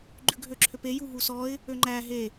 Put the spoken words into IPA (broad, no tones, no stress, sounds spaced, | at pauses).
ɡ͡ǃ ʉ ɡʱ ø ǁʰ ø p e j u ɦ u s ɔ ɪ̯ | ø ŋ͡ǃ æ ɦ e